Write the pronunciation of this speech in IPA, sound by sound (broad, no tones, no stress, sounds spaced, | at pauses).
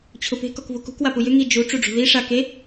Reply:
t͡ɕʰ ʊ p e̤ k ɔ k v u k ṳ k w a p u j ʏ ŋ i d͡ʒ u ʈ͡ʂ u ɖ͡ʐ ṳ ð i ʂ a k e